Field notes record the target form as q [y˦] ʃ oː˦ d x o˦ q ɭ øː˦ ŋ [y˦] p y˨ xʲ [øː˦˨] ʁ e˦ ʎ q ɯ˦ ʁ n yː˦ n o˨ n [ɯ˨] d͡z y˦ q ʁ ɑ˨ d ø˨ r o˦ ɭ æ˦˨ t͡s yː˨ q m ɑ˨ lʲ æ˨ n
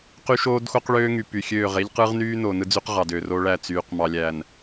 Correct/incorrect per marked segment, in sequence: correct, incorrect: y˨, correct, incorrect: ɯ˦

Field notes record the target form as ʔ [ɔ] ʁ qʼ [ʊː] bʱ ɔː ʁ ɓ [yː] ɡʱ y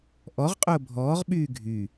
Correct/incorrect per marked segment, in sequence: correct, correct, correct

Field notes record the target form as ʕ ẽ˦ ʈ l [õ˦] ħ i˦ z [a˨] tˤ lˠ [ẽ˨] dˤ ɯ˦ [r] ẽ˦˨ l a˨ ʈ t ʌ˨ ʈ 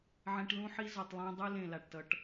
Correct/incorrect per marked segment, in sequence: incorrect: ũ˦, incorrect: ʌ˨, incorrect: ẽ˦, incorrect: l

